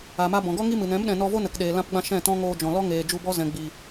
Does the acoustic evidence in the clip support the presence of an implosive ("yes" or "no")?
yes